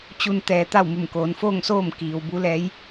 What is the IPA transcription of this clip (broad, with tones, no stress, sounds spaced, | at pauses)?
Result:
t͡ɕ u˧ n t̪ ɛː˩˧ t̪ a˥˨ w m u˧˩ m k oː˩˧ n f oː˥˨ ŋ s oː˥˨ m k iː˩ w b u˧˥ l ɛː˧˥ j